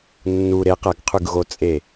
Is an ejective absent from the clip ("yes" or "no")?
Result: no